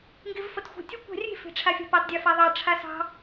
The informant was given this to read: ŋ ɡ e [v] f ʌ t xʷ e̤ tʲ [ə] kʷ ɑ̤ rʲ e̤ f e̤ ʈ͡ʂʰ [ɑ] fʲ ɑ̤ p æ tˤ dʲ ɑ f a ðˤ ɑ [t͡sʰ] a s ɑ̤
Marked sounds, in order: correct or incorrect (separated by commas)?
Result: correct, correct, incorrect, incorrect